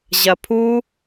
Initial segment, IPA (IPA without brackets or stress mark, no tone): ʑ